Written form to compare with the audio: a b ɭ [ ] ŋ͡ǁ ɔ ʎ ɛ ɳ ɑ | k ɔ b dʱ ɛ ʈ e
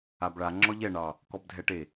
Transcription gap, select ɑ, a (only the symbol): a